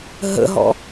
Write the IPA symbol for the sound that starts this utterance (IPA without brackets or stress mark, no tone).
ɦ